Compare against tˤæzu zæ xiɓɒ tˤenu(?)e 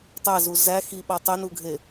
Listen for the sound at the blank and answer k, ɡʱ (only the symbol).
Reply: ɡʱ